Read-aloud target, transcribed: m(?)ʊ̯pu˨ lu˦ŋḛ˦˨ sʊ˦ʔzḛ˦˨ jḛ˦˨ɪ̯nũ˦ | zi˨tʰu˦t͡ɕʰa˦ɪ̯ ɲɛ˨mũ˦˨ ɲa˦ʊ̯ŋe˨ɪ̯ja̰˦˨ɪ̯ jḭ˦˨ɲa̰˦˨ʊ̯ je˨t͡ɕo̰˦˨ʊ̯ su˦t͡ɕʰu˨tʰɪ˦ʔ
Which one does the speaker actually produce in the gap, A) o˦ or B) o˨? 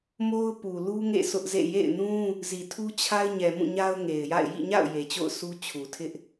A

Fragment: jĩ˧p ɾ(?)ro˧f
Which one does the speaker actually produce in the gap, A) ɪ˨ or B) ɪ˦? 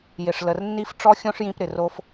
A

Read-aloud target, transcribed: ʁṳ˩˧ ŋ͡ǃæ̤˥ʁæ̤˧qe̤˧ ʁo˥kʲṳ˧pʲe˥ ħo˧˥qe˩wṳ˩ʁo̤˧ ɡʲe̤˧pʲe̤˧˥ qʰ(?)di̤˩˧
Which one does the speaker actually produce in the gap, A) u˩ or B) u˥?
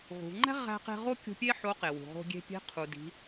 A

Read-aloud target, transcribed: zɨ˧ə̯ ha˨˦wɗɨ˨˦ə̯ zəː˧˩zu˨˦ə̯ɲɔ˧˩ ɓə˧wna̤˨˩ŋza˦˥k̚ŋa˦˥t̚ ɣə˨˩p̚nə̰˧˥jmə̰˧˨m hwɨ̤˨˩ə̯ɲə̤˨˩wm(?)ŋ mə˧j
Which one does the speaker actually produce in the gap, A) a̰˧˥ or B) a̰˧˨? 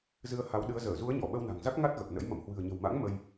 A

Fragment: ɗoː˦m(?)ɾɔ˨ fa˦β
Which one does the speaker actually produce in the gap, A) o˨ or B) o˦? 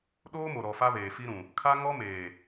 A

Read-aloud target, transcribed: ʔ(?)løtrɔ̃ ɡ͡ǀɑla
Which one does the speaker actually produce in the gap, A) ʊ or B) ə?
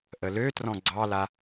B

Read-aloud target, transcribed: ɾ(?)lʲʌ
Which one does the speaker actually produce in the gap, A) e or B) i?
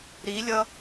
B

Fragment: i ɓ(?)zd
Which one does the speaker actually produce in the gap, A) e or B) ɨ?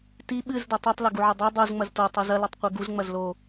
B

